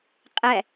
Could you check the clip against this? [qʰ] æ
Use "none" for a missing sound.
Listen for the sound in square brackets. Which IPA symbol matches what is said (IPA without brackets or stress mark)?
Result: qʼ